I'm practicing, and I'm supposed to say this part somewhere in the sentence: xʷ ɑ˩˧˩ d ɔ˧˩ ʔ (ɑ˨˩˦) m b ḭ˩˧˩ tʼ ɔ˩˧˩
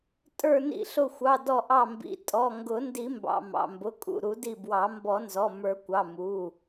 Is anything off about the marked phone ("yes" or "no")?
yes